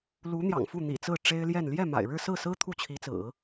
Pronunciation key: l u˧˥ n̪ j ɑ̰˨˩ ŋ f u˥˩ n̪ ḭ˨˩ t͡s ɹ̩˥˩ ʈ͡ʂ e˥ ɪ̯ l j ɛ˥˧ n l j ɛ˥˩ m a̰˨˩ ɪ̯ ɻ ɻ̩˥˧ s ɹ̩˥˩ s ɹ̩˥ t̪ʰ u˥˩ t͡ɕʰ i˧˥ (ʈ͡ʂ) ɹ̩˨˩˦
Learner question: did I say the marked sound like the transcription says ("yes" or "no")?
no